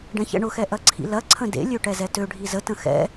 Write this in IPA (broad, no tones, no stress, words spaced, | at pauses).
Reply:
ɖɛ̃çɛ̰ɳʊxɛ ʔɐǀʰḭlɐǀʰə̃ dḛlʲø ʈɛzɛtøɖʱi zətə̃ xɛ̰